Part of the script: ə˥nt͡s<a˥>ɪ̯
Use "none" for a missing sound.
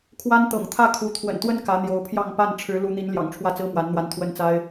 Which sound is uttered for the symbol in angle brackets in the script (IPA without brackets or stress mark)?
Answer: a˥